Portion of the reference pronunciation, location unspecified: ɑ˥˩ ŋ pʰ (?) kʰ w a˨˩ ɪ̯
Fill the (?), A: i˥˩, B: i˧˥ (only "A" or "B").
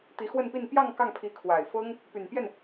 B